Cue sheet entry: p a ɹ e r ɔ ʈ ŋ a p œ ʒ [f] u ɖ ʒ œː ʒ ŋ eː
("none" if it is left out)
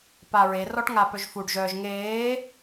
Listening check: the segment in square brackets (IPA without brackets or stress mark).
f